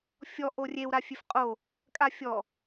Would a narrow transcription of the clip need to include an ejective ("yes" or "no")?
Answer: yes